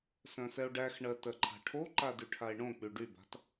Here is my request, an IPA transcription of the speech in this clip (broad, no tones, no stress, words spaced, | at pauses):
sœ̃sɛo̯ɖæxɳɜ tɜǃʰa̤ʈʰoǃa dyʈʰae̯ɳõk͡py ɖyba̤t